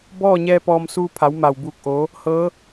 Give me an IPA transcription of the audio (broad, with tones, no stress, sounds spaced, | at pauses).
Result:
b ɔː˥˨ ɲ ɛː˧ p ɔː˧ m s uː˧ pʰ a˩˧ w m a˧˩ w b uː˧˩ k̚ ʔ oː˩˧ | h ɤː˧˥